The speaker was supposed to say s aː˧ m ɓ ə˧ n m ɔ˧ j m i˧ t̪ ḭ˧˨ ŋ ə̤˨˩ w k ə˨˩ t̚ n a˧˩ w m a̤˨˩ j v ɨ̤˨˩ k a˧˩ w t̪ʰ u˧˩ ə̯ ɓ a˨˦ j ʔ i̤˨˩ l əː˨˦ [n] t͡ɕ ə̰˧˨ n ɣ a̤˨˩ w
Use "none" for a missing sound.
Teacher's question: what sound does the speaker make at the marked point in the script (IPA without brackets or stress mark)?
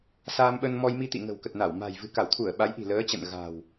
none